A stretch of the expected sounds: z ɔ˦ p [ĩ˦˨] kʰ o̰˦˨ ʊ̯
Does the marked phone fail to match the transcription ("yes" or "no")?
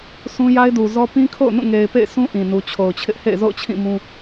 yes